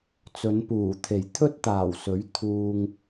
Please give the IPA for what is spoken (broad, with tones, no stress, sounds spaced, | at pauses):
t͡s ɵ˨˧ n p uː˨˩ t̪ʰ e˨˩ j t̪ʰ ɵ˥ t̚ t̪ aː˨˩ w s ɵ˨˥ ɥ t̪ʰ uː˧ ŋ